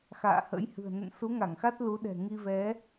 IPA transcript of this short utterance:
xa̰ː˧˨hə̰˧˥jhɨ̤˨˩ə̯ nə̰˧˨nsu˨˦ŋa˧˩ŋxa˦˥t̚ lu˨˦ɗɛ̤˨˩ŋi˧vɛ˨˦

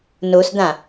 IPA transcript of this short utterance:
nosd̪ã

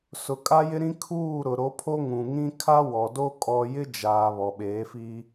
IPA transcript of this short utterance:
sʊ˨kʼa˦jɪ˦ ɾĩ˦ kʰuː˦˨ ɾʊ˨ɾo˨˦pʰo˦ ŋũ˨ŋĩ˦ kʰa˦ wɔ˨do˦ kʼɔ˦ jɪ˦d͡ʒaː˨ βɔ˨ɓeː˨˦fiː˦

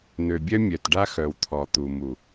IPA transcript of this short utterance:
n̪ø˨bʲœ˦ mʲœ˨tɖa˦ xœ˨wt̪ʰɔ˨t̪u˨mu˨

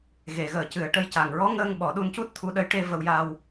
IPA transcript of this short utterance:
ɣe˨˩˨ɣəː˨˩cɨ˨˩ə̯ʈə˧j ca˨˩ŋɹɔ˧˥ŋəː˧ŋ ɓɔ˨˩˦ɗu˧ncu˦˥t̚ t̪ʰu˧ ɗə˧˥jʈe˧ və˧wja˧w

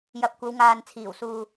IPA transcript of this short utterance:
jɐ˨p̚kʷɐ˨˧wŋaː˨n t͡sʰiː˨˩wsuː˨

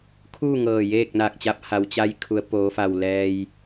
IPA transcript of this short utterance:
kʰuː˥˨ŋɤː˧˩ jeː˥˨k̚naː˧˩k̚t͡ɕa˧˥p̚ ha˩˧wt͡ɕa˧˥jkʰu˩˧ə̯ poː˩˧fa˧˩w lɛː˩j

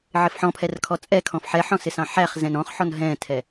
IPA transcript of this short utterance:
ʕɪfħɔ̃pʰɛr kʰɔt͡sʼɛkʰɔ̃f ħɛħɔ̃ sɪsɑ̃ħæχzɛ̃n ɔ̃χħɔn ɦɛ̃tʰɛ

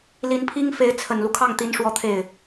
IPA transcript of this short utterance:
li˧˥npʰi˥ŋ fe˧˥ɪ̯t͡sʰə˨˩nlu˦ kʰɑ˥˩ŋt̪i˧˥n ʂwɔ˥˧t̪ʰe˥˩ɪ̯

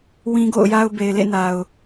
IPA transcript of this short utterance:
wĩ˦ɡo̰˦˨ʊ̯ja˦ʊ̯ be˨ɪ̯lḛ˦˨ na˨ʊ̯

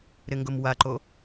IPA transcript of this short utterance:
ɾɪŋɡʊmwaǃo

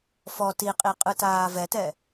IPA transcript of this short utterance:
fɔ tiqʼi qʼɯtaːvɛtɛ

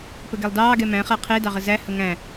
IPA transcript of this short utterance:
pəɡɛlˠdɑːɡɛ mæ̃χa qʰedɑʁə zæ həŋæ̃

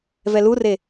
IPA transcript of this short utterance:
vɛlure

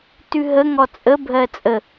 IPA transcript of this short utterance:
tʉɦəŋɔ t͡sʼəbʱɜ t͡sʼə

